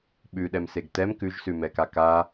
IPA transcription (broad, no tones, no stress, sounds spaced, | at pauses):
ɓ ʉ ɗ ɛ m s e ɡ t ɛ m k ʉ ʒ s ʉ m ɛ k a k a